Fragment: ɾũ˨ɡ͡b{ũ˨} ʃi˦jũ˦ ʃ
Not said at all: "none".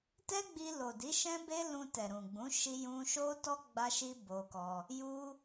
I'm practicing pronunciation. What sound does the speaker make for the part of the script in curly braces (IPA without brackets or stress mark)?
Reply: ũ˨˦